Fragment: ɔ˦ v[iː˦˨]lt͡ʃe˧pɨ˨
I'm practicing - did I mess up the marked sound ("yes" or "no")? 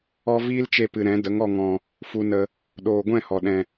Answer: yes